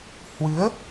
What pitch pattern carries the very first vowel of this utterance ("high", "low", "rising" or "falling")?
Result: rising